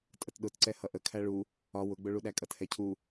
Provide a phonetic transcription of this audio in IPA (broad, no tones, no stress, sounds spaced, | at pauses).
tʼ ə t ɗ ʊ t ǀ ɛ h ʌ ʔ ə kʰ æ ɭ u | ɒ w ʊ ɡ͡b ʊ ɭ u ɗ æ kʼ ʌ t h ɛ cʰ u